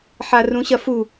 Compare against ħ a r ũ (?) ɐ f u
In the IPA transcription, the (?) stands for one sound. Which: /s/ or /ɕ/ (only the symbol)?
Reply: ɕ